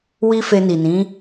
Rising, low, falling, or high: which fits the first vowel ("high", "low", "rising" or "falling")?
high